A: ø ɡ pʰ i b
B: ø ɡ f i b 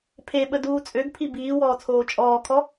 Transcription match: A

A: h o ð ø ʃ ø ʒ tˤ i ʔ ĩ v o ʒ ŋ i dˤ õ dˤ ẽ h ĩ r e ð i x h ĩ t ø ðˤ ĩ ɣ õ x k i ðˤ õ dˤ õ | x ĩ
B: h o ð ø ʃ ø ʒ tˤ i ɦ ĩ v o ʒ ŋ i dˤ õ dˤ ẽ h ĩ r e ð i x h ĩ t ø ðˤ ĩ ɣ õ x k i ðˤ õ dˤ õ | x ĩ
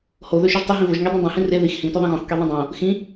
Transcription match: B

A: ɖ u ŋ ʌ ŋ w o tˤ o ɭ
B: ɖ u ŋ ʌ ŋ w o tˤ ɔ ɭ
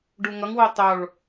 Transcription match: A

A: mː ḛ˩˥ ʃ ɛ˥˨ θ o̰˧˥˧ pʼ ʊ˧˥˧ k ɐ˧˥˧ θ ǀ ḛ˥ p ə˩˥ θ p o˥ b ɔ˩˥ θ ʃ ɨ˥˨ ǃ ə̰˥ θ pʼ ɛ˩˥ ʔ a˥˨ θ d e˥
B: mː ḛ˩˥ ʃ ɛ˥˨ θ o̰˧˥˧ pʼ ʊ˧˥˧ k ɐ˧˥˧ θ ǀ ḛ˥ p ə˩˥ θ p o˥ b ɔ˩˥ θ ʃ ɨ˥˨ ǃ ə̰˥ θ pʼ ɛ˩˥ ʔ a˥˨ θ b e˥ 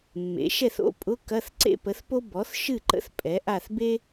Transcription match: B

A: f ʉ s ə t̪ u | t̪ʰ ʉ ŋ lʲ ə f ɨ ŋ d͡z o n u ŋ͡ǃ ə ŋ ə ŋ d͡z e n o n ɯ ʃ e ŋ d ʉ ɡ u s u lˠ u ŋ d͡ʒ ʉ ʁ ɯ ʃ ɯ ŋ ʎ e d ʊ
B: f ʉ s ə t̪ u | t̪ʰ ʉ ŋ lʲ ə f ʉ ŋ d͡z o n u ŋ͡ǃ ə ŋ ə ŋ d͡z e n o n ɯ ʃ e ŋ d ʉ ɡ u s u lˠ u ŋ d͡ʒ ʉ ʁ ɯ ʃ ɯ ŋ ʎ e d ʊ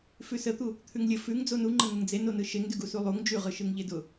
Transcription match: B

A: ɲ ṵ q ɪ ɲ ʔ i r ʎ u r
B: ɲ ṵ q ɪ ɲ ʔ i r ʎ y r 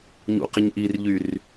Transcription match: B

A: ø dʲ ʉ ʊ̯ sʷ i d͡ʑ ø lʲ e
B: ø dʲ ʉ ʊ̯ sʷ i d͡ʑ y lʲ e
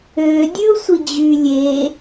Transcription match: B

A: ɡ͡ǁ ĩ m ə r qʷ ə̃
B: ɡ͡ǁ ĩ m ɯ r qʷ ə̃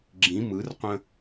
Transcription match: B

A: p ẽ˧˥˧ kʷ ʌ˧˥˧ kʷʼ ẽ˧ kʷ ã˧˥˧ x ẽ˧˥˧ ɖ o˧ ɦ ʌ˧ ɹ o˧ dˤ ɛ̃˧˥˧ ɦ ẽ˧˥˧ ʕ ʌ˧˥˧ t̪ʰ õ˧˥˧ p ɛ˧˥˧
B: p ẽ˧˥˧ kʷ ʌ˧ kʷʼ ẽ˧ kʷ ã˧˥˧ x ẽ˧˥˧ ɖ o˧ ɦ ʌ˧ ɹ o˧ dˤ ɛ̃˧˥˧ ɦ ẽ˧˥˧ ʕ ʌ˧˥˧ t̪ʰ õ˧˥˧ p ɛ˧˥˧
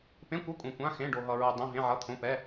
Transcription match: A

